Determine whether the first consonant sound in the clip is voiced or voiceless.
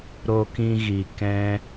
voiced